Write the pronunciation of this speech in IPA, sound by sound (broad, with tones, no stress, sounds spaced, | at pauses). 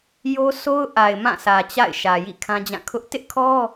j o˦ s o˦ ʊ̯ ʔ a˨ ɪ̯ m ã˦˨ sʰ ä˨ t͡ɕ a̰˦˨ ɪ̯ ʃ ä˨ j ḭ˦˨ kʰ ã˦ d͡ʑ ã˦˨ kʰ ʊ˦ ʔ t ɪ˦ ʔ kʰ ɔ˦